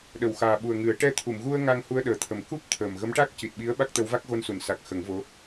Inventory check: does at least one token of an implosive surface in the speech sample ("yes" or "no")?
yes